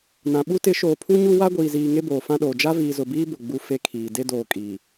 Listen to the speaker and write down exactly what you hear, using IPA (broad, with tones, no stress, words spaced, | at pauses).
nã˨ɓu˦tɪ˨˦ ʃoː˨pʰu˦ɲu˦ wa˦ɡʷiː˨ziː˨ ŋe˦boː˨fã˦ɗoː˨ d͡ʒa˦viː˨zʊ˨biː˦ bʊ˨ɡ͡bu˦ fe˦kʰiː˨ de˦doː˨ kʼiː˨